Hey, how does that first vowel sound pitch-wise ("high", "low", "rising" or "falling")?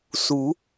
rising